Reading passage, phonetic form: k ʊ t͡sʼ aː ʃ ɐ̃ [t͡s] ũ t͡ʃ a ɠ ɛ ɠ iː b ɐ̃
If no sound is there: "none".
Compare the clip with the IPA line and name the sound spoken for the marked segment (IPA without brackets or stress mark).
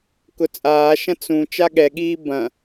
t͡s